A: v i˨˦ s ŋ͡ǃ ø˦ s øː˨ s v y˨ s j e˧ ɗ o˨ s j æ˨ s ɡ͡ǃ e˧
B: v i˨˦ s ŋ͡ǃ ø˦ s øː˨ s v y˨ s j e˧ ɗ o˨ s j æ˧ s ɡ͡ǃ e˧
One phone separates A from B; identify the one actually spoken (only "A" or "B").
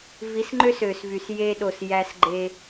B